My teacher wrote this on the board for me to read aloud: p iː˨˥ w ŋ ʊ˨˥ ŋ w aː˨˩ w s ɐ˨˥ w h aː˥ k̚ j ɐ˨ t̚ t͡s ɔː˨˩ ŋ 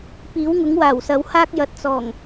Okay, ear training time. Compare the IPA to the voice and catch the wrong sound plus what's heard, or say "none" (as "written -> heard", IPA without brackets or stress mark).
none